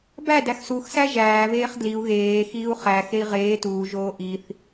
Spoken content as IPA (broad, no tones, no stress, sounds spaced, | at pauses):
b æ d æ x s u x s æ ʒ æː v eː χ d l i u̯ ɣ eː x iː u̯ χ æ x e i̯ ʁ eː t uː ʒ oː ʔ i θ